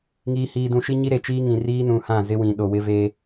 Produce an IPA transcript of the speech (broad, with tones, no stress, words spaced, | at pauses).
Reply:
ŋiː˨hiː˨ dũ˨ʃi˦ɲi˦ ɾe˨t͡ʃiː˦ŋĩ˨ riː˦nũ˨hã˦˨ zɪ˦wĩ˨ɗo˨ wɪ˦veː˦